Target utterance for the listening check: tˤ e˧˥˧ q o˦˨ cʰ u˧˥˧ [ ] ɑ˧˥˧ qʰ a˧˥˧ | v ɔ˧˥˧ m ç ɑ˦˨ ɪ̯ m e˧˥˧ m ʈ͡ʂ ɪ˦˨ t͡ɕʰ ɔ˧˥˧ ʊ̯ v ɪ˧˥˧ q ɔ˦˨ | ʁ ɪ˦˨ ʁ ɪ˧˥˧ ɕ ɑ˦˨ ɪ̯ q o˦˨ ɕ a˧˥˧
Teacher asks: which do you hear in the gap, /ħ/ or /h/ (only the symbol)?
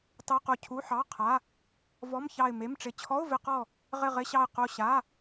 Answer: ħ